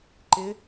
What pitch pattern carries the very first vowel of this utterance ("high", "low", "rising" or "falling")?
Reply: rising